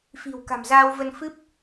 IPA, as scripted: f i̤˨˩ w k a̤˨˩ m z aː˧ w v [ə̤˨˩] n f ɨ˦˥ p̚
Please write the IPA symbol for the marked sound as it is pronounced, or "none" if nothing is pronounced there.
ə˧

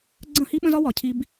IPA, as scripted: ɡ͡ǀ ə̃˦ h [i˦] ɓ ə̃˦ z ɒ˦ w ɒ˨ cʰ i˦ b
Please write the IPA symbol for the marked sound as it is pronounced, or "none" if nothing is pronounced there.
i˦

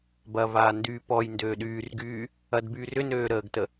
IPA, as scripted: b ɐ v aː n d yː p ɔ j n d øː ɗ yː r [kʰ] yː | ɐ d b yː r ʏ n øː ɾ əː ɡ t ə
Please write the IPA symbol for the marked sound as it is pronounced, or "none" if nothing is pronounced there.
ɡ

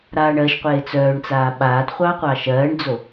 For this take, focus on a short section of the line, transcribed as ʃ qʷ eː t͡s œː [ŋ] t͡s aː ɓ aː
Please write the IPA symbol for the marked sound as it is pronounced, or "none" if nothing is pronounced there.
ɳ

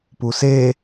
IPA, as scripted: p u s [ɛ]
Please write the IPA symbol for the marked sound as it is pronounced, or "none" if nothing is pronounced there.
e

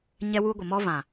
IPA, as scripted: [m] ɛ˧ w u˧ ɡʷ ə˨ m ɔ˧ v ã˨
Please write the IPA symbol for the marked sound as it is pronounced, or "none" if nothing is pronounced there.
ɲ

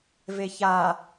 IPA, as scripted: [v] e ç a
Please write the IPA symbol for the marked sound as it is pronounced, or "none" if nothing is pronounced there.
v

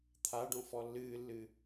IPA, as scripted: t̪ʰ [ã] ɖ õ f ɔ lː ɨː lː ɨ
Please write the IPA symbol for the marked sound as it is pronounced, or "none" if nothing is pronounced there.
a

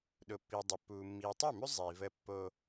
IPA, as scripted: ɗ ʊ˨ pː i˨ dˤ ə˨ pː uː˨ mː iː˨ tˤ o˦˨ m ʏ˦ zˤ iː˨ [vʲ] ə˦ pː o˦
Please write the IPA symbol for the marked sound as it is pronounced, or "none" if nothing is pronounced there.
v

